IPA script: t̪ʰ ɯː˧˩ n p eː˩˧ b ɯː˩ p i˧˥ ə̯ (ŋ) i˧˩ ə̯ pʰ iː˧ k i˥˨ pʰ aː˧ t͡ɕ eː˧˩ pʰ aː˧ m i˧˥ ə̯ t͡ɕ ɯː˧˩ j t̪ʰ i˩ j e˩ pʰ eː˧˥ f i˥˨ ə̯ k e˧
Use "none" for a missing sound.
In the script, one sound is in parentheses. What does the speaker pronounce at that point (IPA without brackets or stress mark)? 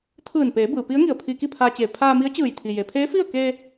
ŋ